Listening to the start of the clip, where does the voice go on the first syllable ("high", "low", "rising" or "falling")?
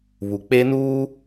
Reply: low